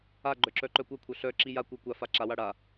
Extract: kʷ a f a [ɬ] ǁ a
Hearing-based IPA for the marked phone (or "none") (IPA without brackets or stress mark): none